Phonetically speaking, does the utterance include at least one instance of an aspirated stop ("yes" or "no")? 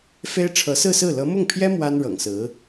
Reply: yes